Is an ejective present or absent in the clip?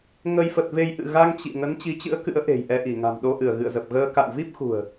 absent